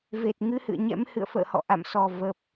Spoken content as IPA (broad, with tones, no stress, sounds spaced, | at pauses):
v e˨˩ t̚ ŋ ɨ˧ h ɨ̰˧˨ ə̯ ɲ ɛ̰˧˥ m h ɨ̰˧˨ ə̯ f ə̰ː˧˨ h ɔ̰˧˨ ʔ a̰˧˨ m s ɔ˨˩ v ə˨˩ p̚